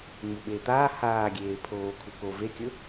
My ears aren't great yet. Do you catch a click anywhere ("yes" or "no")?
no